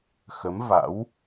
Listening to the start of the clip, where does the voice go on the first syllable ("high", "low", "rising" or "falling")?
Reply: rising